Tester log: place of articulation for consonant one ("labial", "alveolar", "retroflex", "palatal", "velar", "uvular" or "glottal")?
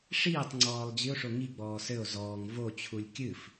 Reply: retroflex